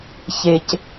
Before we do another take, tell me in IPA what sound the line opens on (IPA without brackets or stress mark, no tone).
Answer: ç